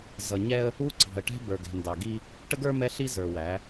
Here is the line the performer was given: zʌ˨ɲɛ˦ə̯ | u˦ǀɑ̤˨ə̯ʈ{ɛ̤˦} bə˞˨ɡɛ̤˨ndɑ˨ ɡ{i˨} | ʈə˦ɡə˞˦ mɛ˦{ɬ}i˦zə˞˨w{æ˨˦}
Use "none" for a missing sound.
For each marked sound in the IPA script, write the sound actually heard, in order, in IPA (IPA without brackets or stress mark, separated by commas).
ɛ̤˦, i˦, ɬ, æ˨˦